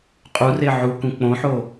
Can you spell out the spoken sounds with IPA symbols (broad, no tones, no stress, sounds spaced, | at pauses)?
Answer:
qʼ u r e ʕ u k ũ k͡p õ ħ o